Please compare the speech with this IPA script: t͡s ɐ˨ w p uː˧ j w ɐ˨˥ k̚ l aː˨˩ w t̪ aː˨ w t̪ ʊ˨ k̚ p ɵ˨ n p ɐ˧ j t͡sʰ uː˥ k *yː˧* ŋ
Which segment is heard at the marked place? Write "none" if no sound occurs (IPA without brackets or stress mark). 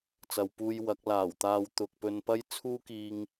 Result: iː˧